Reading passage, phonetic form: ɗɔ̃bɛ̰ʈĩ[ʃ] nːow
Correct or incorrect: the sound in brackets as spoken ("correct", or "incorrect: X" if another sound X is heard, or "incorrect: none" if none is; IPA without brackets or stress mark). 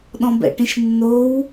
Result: correct